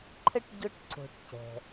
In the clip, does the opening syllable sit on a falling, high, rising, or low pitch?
high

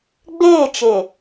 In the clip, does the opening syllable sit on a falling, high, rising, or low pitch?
falling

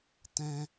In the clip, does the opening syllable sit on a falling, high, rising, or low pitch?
high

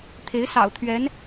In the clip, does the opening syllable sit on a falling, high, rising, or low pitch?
rising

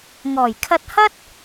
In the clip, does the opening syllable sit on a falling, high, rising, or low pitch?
low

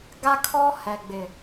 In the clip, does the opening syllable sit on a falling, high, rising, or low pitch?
high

